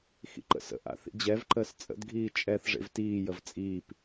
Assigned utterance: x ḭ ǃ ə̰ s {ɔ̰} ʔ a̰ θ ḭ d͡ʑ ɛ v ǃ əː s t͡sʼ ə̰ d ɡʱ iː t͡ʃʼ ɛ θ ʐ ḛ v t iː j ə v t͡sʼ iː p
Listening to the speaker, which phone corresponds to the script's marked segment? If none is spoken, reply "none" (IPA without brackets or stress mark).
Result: ə̰